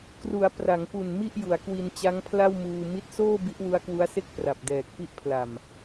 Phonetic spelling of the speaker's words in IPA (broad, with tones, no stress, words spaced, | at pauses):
kru˩˦a̯ pra˩˦ŋpu˨˩n mi˥˩ʔju˩˦a̯kwi˧n t͡ɕa˦˥ŋpʰla˥˩wmuː˧ mi˦˥t̚soː˥˩ bi˦˥ʔwu˦˥a̯kwu˦˥a̯se˥˩k̚ pra˨˩p̚dɛː˨˩k̚pi˥˩ʔ pʰla˨˩m